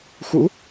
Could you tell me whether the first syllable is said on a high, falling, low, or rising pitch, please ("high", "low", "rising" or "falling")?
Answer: rising